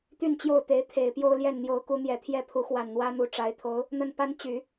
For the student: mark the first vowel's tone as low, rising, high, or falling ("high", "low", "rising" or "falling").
falling